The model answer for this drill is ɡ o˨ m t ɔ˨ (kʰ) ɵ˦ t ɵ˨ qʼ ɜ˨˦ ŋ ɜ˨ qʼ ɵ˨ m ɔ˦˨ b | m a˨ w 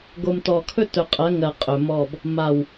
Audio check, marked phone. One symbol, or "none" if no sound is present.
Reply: kʰ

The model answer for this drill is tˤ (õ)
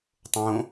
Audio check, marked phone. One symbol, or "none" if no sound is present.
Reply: õ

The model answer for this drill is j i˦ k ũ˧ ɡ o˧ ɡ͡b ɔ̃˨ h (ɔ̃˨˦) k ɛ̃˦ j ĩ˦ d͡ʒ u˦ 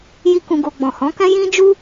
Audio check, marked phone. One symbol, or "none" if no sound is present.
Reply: ɔ̃˨˦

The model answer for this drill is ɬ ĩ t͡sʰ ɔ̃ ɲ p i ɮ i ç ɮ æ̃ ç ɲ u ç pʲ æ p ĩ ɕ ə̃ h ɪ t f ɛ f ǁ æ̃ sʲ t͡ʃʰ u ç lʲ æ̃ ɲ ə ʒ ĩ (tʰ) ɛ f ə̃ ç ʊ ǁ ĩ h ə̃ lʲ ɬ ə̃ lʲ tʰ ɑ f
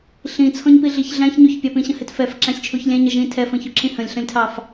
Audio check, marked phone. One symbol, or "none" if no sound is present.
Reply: tʰ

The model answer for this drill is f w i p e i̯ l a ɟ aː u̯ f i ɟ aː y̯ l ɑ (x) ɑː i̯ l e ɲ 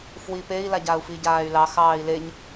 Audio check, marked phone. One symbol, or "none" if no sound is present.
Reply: x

